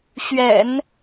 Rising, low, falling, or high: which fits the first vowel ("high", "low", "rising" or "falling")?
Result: low